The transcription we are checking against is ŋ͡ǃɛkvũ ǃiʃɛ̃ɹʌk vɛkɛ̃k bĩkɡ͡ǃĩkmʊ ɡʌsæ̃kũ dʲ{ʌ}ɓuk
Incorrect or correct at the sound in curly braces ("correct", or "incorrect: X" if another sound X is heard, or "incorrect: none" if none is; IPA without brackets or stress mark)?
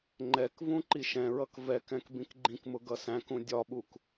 incorrect: ɒ